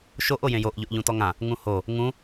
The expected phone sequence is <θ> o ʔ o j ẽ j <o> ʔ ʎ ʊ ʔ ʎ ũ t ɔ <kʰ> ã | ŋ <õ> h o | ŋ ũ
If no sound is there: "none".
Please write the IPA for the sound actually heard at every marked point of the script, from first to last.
ʃ, o, ŋ, ũ

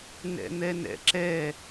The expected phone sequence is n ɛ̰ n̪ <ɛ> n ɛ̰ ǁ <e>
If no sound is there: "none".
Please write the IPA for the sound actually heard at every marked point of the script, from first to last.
ɛ, ɛ

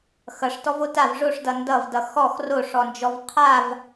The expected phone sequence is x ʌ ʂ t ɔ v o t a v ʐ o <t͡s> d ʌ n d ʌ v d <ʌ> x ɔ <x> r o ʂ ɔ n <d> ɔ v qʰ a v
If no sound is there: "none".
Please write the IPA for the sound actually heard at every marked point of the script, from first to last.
ʂ, ʌ, x, d͡ʒ

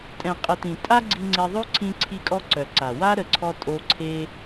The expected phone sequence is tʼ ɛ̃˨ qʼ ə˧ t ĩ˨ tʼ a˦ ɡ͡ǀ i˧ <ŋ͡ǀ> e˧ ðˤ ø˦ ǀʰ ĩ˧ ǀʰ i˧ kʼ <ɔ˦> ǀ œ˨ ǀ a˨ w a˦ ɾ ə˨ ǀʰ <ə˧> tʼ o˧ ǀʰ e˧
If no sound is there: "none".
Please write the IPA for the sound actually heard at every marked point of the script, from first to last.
ŋ͡ǀ, ɔ˧, ɔ˧

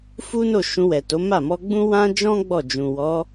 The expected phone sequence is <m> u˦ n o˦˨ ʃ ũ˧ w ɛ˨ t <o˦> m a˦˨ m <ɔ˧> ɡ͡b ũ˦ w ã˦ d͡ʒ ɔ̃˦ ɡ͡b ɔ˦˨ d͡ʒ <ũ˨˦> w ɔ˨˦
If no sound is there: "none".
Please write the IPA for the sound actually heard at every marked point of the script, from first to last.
f, o˨˦, ɔ˧, ũ˨

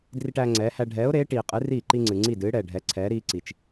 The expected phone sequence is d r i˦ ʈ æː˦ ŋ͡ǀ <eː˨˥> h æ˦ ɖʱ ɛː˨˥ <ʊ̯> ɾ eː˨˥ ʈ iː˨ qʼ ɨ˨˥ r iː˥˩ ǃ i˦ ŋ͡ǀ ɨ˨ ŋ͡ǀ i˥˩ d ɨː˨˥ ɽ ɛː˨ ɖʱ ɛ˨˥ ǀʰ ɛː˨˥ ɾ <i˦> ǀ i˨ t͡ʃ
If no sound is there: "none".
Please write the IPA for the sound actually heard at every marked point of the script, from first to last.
ɛː˨˥, ʊ̯, iː˦

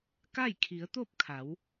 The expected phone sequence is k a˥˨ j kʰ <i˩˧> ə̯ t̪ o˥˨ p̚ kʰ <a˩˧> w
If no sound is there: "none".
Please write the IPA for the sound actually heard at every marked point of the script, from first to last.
i˩˧, a˩˧

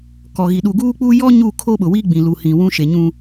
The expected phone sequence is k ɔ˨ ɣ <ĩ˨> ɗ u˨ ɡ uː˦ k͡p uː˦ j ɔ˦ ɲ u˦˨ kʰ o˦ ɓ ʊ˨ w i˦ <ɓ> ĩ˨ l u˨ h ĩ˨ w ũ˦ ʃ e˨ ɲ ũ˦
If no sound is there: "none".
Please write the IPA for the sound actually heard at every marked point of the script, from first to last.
i˨, ɡ͡b

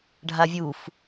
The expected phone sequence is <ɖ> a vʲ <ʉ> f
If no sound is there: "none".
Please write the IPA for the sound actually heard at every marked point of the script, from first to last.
ɖʱ, u

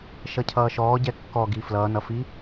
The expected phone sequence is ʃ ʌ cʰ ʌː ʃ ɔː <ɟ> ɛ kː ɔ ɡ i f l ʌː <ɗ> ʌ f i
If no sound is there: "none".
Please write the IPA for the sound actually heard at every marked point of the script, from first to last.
ɟ, n

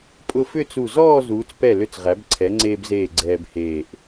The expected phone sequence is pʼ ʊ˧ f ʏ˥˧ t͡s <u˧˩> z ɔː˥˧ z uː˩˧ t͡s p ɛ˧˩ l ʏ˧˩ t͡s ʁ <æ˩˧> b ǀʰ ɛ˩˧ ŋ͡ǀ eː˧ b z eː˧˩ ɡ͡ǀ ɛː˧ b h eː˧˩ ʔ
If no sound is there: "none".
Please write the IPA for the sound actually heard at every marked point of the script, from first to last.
u˧˩, æ˩˧

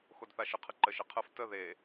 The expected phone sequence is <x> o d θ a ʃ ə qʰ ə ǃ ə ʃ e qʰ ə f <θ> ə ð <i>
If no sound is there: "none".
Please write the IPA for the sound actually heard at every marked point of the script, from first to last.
x, t, e

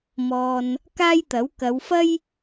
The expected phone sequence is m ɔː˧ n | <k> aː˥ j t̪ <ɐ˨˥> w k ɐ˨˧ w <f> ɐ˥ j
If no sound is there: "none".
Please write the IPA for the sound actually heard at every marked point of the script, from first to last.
k, ɐ˨˥, f

